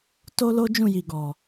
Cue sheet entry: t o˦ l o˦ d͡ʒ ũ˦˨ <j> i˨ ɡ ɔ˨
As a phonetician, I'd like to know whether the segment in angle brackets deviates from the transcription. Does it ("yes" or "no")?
no